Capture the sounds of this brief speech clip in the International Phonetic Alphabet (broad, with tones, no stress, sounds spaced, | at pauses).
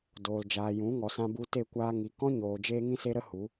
d oː˨ l d͡ʒ aː˨ j ũ˨˦ ŋ ɔ˨ s ã˧ b u˧ t e˦˨ kʷ aː˧ ŋ i˨ k ɔ̃˦ ɲ oː˨ d͡ʒ eː˦ ŋ ĩ˦ s e˦ ɾ ə˦ h u˨˦